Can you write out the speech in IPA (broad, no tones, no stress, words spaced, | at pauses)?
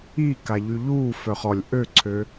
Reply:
iːka ʎyʎuː fœχɔlʲ ʔøǀʰø